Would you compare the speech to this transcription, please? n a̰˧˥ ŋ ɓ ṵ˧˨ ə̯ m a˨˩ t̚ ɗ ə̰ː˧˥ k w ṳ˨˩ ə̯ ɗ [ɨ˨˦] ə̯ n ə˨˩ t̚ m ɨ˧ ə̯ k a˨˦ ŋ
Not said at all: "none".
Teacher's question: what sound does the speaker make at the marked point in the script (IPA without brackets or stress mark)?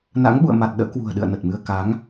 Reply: ɨ̰˧˨